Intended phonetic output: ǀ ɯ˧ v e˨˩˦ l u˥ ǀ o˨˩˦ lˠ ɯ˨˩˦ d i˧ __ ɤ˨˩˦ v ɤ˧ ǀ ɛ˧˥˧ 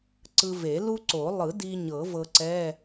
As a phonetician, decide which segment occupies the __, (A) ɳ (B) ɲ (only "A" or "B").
B